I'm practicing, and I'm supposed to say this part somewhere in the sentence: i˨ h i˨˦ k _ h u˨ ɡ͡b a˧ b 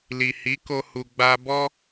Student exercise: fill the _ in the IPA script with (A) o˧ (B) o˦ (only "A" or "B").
A